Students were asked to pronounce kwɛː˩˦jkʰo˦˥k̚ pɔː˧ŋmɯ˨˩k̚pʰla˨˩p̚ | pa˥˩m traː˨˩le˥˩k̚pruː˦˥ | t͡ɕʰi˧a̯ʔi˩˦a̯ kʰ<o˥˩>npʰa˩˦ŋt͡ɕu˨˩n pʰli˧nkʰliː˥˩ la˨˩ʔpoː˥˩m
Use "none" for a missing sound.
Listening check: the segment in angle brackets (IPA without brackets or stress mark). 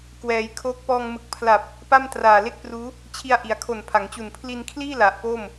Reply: o˨˩